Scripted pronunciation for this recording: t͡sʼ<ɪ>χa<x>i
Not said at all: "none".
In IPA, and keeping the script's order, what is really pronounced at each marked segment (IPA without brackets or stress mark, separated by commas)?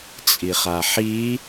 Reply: i, ħ